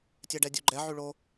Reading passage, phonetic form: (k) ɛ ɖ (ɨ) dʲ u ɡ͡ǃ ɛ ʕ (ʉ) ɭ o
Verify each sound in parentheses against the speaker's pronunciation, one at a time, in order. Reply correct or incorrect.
incorrect: tʲ, incorrect: ɛ, correct

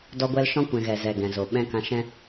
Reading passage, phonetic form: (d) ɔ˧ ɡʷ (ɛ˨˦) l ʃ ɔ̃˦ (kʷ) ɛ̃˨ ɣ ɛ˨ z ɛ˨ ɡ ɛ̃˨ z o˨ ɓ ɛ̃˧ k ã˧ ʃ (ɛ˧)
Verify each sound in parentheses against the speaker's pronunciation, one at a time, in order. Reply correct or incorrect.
correct, incorrect: ɛ˧, correct, incorrect: ɛ̃˧

